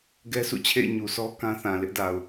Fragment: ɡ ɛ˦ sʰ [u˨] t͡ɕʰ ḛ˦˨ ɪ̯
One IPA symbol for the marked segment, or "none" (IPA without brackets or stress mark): ṵ˦˨